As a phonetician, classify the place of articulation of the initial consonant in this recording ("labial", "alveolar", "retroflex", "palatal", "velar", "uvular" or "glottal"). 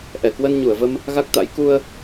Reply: glottal